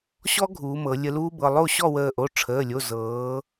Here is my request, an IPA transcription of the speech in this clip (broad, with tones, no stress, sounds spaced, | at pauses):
ɕ ɔ˦˥ ɡʱ uː˩˧ m ɤ˩˧ lʲ ə˧ l uː˦˥ b ɤ˩˧˩ lˠ o˥˨ ɕ ɔ˥˨ w əː˧˩ ʔ o˩˧˩ ʈ͡ʂʰ əː˩˧˩ lʲ o˩˧˩ z ɤː˩˧